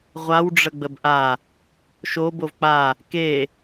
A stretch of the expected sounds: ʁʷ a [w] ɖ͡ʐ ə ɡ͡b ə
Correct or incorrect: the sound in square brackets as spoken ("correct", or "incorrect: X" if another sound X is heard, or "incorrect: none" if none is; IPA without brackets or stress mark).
correct